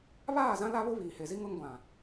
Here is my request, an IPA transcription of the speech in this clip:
βaː˦˨zã˦ la˦ βʊ˦βiː˨he˨zi˦ ŋʊ˦ŋɡʷã˨

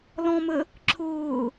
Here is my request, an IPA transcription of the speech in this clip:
lɔ̃mə | ǁʰʊː

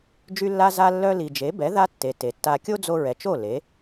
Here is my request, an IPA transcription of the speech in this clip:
d͡ʒy˧lːa˧ za˧lːœ˧ li˨d͡ʒe˨˦bɛ˨˦ ða˦tːe˨ te˨tːa˧ kʲo˦d͡zo˧ɹɛ˨t͡ʃo˦˨ le˨˦

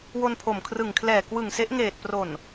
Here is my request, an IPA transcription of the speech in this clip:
wo˧npʰo˨˩mkʰrɯ˨˩ŋ kʰlɛː˨˩kwɯ˨˩ŋse˦˥ʔ ŋeː˨˩t̚pro˨˩n

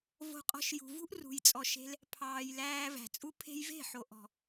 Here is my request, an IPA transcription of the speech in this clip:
vo̤˧qʼɔ̤˧ʃjṳ˨ vṳ˦ʔrṳ˨jt͡sʼɔ˨ʃe̤˧l | pʰɑː˨jlæː˧ væ̤˨t͡sʼu˦ pʰe̤˧jve̤˦˨ħo˨ ʔɔ̤˨

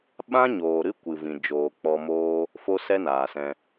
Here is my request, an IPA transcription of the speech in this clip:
ɓã˦ɲoː˨ ɾɨ˦kʷɨ˨vĩ˨ d͡ʒoː˨k͡pɔ˧moː˦ | fo˦ sɛ˦naː˨sɛ̃˧

